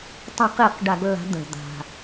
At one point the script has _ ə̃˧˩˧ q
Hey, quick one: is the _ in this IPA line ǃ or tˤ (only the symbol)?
tˤ